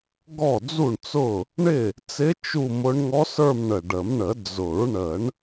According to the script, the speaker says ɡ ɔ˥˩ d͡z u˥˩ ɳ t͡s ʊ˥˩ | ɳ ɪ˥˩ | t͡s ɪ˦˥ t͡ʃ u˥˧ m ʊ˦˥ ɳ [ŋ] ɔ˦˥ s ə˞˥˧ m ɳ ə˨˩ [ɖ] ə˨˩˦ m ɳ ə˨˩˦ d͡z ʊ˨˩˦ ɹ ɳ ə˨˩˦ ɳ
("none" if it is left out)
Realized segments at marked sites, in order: ŋ, ɖ

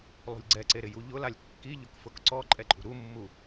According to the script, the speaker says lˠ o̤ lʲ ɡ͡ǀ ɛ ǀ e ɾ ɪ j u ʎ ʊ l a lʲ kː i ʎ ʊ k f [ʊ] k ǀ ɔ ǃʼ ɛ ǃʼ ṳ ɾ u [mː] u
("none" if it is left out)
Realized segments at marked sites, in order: ʊ, mː

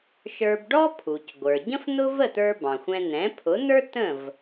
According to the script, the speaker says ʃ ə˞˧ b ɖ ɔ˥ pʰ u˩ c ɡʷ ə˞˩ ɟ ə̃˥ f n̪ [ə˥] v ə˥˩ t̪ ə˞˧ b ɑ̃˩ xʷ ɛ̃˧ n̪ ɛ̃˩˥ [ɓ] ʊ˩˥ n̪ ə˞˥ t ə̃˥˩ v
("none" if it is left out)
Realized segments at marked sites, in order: ʊ˥, pʰ

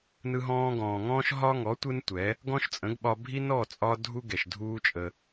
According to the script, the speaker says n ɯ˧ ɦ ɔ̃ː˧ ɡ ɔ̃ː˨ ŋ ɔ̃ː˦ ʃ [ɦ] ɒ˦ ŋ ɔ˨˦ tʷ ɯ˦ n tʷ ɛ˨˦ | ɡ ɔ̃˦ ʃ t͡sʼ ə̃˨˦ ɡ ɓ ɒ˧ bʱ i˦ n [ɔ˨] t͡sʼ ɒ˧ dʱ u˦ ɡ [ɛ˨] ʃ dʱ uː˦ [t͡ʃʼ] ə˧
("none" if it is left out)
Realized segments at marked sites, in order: ɦ, ɔ˦˨, ɛ˨, t͡ʃʼ

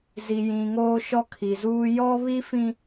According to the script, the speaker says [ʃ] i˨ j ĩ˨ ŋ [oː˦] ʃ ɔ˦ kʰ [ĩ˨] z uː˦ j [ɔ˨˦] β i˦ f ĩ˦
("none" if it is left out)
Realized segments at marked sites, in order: z, oː˦, i˨, ɔ˦

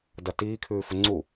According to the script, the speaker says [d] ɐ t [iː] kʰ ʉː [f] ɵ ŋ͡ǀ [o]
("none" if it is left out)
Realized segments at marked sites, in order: d, iː, f, u

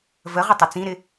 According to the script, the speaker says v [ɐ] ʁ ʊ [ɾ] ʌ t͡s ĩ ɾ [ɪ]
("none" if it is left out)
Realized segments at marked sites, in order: ə, tˤ, ɪ

